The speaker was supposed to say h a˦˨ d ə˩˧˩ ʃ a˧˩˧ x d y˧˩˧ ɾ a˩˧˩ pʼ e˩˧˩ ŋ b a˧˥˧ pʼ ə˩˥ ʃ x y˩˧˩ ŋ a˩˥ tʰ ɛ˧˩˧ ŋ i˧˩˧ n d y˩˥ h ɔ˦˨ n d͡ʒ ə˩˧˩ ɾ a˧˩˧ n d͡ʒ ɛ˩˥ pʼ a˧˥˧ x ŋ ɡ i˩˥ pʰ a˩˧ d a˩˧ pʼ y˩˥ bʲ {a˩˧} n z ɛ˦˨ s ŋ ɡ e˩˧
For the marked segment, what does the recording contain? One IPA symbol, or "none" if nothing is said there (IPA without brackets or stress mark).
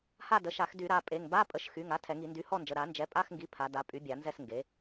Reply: a˧˩˧